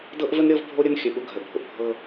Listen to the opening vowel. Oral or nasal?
oral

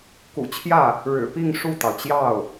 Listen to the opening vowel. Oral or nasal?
oral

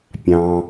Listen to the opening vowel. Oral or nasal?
nasal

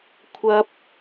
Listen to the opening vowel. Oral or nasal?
oral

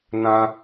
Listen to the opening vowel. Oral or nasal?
nasal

